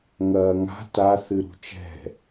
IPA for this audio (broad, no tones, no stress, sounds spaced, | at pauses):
ŋ ɐː ŋ a̤ t a θ ɨ ɾ ṳ t͡ʃ ɛ̤